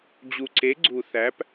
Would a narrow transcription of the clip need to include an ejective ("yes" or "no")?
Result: no